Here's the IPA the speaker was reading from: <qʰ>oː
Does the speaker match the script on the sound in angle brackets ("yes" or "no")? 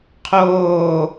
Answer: yes